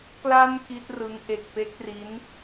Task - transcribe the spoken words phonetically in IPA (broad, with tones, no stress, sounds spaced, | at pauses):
k l a˧ n k i˦˥ t̚ r ɯ˦˥ ŋ ʔ e˨˩ k̚ p e˦˥ k̚ r i˦˥ n